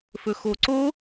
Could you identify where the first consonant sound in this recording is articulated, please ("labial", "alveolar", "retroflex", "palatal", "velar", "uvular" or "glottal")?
labial